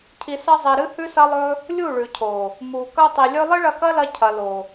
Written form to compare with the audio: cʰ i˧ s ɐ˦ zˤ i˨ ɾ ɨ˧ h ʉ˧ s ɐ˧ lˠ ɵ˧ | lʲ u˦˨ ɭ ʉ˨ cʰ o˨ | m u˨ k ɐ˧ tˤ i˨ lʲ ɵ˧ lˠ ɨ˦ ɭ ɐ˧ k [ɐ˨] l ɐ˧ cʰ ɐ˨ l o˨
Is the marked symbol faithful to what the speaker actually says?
no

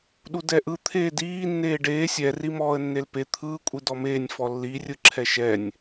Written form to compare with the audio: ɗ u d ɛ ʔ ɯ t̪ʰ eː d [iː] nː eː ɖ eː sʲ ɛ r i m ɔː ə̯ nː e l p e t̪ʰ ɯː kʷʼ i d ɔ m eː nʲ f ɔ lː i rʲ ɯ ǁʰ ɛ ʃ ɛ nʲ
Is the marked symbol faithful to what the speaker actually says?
yes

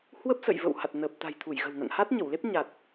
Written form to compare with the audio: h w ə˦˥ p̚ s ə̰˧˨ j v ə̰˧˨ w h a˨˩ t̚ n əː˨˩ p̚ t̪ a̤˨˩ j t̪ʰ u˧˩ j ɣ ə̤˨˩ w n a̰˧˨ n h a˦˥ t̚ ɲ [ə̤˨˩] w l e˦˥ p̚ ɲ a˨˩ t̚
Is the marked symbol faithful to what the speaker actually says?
no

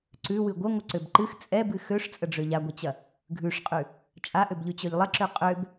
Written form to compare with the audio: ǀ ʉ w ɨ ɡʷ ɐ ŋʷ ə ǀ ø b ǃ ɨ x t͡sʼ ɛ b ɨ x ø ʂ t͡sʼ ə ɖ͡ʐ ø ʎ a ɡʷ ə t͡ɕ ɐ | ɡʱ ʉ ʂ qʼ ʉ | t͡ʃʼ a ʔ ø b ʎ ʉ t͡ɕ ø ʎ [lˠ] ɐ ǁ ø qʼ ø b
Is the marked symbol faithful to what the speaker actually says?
yes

